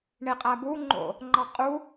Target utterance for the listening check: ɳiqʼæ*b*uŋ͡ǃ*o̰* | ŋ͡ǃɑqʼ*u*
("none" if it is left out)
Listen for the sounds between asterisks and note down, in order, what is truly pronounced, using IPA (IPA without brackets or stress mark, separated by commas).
b, o̰, u